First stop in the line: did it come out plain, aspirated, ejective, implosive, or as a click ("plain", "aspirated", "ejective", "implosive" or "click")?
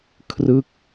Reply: aspirated